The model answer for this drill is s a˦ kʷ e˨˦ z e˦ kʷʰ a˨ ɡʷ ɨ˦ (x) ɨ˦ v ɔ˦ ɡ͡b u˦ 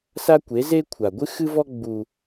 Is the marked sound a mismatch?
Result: no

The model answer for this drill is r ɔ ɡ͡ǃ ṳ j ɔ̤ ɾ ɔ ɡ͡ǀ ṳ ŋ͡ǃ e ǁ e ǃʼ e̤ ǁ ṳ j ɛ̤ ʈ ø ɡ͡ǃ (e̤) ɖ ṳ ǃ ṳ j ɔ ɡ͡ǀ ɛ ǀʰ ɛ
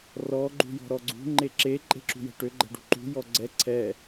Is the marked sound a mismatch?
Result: yes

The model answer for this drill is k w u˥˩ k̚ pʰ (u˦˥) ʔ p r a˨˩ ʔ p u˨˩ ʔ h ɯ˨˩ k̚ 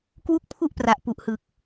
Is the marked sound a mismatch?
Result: yes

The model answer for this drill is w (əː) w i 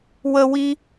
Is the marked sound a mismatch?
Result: yes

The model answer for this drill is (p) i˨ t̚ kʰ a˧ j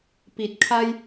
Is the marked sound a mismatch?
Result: no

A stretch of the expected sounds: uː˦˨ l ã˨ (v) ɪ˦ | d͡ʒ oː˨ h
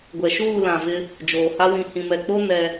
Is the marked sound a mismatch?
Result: no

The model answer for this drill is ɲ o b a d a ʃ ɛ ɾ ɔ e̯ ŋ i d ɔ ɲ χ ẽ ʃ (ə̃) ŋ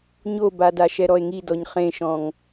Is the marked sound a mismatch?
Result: yes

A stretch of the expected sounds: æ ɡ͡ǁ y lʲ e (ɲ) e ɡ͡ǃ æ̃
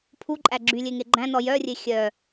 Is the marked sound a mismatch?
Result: yes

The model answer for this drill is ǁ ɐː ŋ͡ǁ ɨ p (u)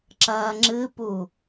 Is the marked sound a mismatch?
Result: no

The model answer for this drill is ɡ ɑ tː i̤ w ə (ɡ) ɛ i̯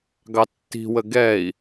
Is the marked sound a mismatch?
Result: no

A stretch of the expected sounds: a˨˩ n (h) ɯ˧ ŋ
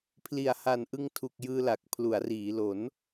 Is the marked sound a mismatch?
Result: yes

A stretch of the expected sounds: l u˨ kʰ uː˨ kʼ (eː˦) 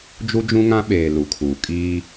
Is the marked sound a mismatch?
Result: yes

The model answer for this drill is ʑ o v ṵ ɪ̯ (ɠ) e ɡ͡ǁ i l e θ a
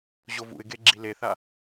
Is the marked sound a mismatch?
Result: yes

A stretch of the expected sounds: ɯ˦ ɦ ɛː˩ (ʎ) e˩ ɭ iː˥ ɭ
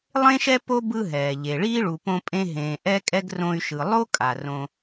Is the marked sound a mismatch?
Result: no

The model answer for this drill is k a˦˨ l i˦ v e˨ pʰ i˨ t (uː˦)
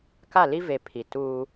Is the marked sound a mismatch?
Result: no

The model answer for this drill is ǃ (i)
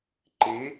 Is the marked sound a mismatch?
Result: no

